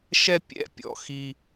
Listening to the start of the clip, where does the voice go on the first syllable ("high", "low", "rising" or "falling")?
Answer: high